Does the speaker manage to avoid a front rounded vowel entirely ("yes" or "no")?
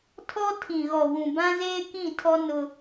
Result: yes